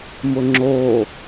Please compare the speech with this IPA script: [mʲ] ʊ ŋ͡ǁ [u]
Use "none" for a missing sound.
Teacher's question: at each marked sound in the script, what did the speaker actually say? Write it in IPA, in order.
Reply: m, o

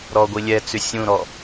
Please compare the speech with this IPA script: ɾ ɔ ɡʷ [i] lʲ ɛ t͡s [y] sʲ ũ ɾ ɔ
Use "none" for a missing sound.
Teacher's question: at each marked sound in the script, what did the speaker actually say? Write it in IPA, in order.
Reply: i, y

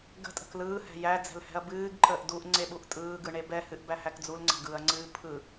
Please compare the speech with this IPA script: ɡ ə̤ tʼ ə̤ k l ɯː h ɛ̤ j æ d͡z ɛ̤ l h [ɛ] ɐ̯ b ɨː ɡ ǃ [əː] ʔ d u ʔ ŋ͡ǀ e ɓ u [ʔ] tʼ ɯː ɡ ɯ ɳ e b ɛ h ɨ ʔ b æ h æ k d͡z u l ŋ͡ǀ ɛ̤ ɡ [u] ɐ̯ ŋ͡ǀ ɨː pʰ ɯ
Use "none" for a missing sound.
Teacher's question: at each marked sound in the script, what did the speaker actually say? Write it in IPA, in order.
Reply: ɛ̤, əː, ʔ, ɯ

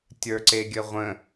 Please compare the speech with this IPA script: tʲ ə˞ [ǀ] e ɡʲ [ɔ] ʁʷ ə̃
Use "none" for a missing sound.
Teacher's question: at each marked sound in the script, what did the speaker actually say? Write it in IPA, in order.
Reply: ǀ, ə

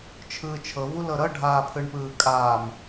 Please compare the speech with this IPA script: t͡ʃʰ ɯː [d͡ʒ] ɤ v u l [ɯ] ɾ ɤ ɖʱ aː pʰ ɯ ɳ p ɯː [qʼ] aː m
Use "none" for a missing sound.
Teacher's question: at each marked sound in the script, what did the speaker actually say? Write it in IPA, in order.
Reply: t͡ʃʰ, ɤ, kʼ

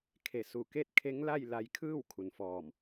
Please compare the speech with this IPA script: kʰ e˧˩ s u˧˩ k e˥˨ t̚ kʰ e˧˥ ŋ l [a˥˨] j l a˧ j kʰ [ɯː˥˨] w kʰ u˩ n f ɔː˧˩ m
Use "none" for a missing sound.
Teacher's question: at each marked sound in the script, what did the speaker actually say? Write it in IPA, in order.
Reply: a˥˨, ɯː˥˨

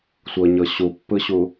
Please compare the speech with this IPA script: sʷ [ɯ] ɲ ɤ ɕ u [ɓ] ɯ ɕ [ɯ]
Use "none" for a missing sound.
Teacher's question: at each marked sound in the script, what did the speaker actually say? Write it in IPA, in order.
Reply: ɤ, pː, u

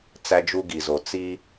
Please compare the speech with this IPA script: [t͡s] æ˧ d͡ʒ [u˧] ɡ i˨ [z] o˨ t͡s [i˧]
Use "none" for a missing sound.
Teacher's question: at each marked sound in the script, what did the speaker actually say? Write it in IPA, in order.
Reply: t͡s, u˧, z, i˧

